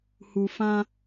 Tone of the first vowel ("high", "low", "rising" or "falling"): low